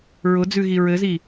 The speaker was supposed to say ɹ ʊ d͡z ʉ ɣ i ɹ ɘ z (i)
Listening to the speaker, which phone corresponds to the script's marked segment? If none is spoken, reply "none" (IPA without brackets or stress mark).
i